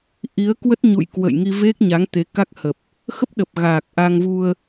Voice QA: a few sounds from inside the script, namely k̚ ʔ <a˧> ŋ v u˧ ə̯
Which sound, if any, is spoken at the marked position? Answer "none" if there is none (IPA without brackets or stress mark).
a˧